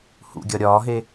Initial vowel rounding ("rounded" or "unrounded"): rounded